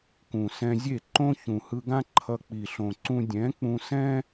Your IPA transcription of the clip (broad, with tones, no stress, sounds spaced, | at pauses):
k ũ˨ s ɛ̃˧ zʲ e˦˨ ǃ õ˦ ç ũ˨ h ɯ˧ ɡ ã˦ ǃʰ ʌ˧ k͡p i˨ ɬ õ˨ ǀ ũ˧ dʲ ɛ̃˨˦ k͡p ũ˧ s ɛ̃˦